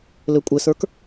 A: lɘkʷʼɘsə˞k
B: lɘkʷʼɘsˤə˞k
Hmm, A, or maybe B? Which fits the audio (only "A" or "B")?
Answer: A